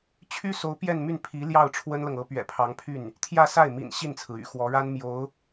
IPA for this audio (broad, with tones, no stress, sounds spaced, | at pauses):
t͡ɕʰ y˥ s o˧˥ ʊ̯ p j ɛ˥˧ n m y˥˩ n pʰ i˧˥ l j ɑ˥˩ ʊ̯ ʈ͡ʂʰ w ə˥ n l ɤ˨ ŋ ɤ˧˥ p ɥ ɛ̰˨˩ pʰ ɑ˧˥ ŋ pʰ y˥˩ n | t̪ʰ j ä˥˧ s a˥˩ ɪ̯ m ḭ˨˩ n ɕ i˥˩ n t͡sʰ ɹ̩˩ y̰˨˩ x w ɔ˧˥ ɻ a˥ n m j o˧˥ ʊ̯